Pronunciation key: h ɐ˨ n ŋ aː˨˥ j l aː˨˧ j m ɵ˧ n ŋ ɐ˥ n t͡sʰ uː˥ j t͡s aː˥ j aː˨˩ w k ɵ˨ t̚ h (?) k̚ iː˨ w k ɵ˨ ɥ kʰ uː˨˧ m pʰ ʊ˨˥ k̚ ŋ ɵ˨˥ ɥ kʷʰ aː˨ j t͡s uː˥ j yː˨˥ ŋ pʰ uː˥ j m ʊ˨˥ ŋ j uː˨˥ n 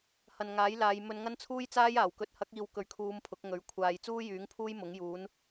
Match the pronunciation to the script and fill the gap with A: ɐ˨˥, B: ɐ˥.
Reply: A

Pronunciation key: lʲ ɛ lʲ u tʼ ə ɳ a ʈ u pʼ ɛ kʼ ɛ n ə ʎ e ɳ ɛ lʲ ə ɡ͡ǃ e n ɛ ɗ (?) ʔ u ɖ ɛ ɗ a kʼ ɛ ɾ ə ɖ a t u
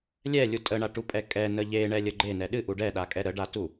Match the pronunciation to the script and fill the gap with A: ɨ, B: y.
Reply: A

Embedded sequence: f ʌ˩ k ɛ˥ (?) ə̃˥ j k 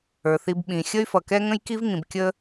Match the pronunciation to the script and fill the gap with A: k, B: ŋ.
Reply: B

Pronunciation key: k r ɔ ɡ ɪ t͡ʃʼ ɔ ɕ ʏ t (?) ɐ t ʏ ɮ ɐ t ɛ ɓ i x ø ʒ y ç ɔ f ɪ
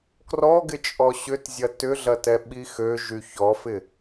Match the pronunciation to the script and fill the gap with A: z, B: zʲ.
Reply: B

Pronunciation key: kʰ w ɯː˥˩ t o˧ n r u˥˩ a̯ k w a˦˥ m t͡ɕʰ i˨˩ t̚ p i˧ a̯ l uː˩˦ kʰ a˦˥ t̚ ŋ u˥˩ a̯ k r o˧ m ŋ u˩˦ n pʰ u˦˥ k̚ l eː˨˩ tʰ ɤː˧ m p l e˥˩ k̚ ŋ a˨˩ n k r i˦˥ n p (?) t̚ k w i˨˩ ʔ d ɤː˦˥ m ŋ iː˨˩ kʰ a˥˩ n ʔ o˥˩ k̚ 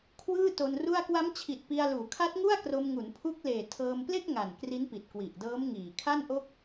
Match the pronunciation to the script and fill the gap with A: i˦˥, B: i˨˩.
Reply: B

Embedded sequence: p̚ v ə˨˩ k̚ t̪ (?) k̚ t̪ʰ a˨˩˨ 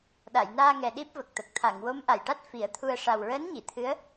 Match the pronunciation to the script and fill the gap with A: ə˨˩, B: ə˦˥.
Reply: A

